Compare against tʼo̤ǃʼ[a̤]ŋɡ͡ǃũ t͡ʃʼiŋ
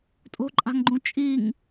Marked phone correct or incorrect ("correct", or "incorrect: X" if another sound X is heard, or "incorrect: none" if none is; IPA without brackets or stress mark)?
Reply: correct